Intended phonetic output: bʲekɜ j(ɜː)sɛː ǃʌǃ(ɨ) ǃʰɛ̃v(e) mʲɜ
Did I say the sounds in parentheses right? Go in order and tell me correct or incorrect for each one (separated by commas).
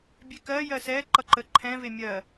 incorrect, incorrect, correct